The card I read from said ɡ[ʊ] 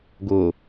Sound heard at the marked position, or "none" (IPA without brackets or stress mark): ʊ